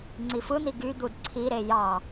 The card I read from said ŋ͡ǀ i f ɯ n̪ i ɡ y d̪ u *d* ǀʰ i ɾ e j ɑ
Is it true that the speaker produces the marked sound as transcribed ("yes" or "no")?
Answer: yes